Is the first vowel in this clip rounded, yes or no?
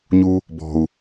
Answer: yes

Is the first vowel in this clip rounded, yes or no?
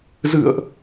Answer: no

